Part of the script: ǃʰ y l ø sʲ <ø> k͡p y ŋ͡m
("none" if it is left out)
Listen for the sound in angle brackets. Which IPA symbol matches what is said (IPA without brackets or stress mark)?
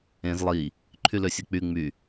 e